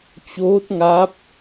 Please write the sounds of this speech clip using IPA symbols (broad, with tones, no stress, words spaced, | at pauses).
t͡ɕoː˦˥t̚ŋa˦˥p̚